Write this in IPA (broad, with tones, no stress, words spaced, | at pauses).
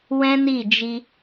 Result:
wɛ̃˦ni˦˨d͡ʒi˧